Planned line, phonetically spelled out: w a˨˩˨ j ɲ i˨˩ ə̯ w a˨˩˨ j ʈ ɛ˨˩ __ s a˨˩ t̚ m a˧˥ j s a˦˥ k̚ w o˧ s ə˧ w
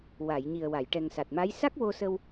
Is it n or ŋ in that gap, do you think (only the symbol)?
ŋ